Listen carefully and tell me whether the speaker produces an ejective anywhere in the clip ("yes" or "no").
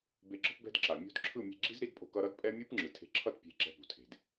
yes